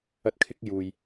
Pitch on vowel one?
high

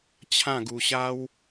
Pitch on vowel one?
falling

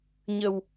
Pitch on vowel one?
low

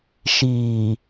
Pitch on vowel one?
low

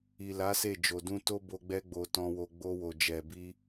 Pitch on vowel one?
low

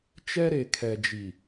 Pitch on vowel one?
high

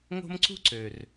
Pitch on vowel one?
high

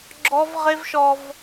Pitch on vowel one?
high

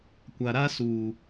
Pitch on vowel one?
low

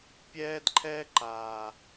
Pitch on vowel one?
high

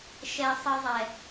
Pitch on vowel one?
low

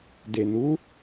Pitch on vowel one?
low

